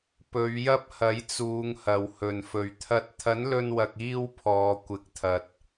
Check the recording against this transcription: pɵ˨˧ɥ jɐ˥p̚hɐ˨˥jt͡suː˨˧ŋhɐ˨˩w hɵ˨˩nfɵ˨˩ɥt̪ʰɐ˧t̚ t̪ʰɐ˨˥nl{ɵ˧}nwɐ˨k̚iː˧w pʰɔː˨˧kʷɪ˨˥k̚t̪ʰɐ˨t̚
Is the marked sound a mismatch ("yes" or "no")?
no